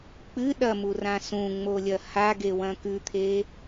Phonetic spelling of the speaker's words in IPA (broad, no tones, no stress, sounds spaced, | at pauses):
k͡p ɨ ɗ ɐ m u r ã s ũ ŋ͡m o lʲ ɐ h a ɡ e w ɐ̃ k ʉ t̪ʰ e